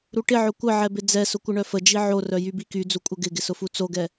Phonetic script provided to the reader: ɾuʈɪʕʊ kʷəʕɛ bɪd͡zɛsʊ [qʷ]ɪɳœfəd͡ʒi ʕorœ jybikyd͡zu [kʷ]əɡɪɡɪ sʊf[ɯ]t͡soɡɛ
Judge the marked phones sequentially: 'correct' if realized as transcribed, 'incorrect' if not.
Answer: incorrect, incorrect, incorrect

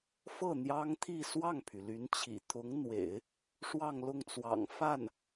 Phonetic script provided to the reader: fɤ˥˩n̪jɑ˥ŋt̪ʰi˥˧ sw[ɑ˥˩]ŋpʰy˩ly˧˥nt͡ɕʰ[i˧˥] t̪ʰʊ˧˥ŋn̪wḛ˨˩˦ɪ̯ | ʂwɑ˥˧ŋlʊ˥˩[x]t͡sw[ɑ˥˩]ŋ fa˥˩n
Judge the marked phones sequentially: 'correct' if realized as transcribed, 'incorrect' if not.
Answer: correct, incorrect, incorrect, incorrect

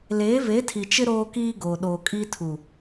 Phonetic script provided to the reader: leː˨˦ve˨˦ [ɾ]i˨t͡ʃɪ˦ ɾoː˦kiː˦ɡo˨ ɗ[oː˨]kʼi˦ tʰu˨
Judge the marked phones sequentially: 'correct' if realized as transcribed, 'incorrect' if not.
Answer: incorrect, correct

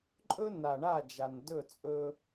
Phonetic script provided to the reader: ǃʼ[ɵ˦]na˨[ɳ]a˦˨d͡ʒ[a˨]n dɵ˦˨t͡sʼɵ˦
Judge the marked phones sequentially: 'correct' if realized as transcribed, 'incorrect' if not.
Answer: correct, correct, correct

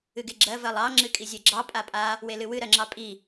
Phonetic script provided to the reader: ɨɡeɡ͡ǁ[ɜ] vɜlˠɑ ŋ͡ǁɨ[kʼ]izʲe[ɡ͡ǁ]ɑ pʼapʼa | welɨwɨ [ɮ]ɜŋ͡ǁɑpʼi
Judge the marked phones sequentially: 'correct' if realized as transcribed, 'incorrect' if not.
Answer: correct, correct, correct, incorrect

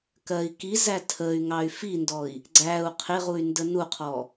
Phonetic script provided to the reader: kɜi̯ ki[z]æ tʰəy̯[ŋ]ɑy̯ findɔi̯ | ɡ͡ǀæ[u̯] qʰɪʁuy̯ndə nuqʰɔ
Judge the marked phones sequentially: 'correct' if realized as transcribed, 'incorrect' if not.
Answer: correct, correct, correct

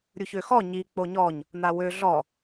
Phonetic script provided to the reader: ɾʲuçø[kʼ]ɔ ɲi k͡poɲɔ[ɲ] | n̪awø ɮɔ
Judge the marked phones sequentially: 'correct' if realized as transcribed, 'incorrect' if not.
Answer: incorrect, correct

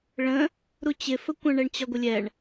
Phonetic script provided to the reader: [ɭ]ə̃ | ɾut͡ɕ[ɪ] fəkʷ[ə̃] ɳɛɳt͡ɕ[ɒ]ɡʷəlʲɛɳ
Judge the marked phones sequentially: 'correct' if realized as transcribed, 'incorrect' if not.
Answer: correct, correct, correct, correct

